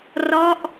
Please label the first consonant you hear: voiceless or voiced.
voiced